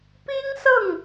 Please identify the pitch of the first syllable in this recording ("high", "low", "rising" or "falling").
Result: high